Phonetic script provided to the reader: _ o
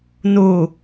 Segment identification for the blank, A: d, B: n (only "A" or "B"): B